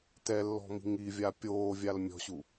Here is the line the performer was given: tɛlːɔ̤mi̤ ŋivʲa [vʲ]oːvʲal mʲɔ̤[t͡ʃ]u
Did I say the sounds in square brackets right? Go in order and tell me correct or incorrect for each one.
incorrect, incorrect

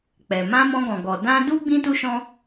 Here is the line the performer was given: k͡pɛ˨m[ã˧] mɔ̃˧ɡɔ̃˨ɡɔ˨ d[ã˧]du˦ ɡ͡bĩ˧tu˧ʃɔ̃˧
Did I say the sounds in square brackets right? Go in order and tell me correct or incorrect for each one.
correct, correct

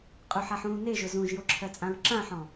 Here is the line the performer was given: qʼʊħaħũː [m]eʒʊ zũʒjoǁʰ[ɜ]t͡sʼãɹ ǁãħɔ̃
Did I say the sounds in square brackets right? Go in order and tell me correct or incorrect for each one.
incorrect, correct

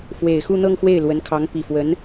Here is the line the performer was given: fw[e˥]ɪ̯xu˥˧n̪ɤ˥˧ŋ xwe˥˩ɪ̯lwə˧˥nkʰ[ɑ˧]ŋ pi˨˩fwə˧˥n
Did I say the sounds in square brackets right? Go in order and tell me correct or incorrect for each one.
incorrect, incorrect

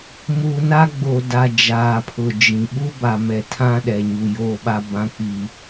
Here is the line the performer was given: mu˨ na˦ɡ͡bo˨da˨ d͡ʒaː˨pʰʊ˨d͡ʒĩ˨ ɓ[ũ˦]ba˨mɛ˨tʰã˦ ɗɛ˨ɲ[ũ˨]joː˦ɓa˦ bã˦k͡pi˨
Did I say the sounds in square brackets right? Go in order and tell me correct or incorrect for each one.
incorrect, incorrect

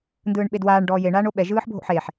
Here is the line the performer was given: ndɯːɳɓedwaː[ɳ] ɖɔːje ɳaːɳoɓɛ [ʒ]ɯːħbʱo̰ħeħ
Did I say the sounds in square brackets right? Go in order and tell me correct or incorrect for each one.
correct, correct

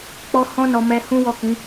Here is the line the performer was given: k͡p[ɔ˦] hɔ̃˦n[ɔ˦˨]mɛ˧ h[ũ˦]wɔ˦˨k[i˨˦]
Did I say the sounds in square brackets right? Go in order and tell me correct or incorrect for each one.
correct, incorrect, correct, incorrect

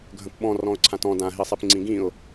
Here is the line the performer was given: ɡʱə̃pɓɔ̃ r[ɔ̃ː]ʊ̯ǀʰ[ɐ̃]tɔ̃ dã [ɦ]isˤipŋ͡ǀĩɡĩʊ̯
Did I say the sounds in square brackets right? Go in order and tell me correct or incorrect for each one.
incorrect, incorrect, correct

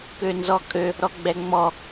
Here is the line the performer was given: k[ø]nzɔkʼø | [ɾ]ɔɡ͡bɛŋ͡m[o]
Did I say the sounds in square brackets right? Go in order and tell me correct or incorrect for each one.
correct, correct, incorrect

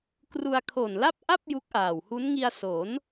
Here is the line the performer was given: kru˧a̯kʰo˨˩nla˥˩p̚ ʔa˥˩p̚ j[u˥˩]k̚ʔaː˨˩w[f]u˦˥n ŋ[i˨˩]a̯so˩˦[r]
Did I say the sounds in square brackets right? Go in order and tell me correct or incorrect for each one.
incorrect, incorrect, incorrect, incorrect

